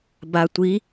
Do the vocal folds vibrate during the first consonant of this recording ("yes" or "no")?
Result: yes